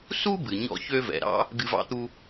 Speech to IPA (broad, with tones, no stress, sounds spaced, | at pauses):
s u˥ b ɨ˩ ɲ ɔ̰˧ ç ø˧ v ɛ̰˩ ɾ ɑ̰˥ | ɡ ɨ˧ v ɑ̰˥ t̪ u˥